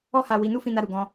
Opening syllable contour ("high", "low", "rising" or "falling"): high